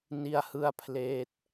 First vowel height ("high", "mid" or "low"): high